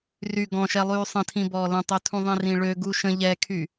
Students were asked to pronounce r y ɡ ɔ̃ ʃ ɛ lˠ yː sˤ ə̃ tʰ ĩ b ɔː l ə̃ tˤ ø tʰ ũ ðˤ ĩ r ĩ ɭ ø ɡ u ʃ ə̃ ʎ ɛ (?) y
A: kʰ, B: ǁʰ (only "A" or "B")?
A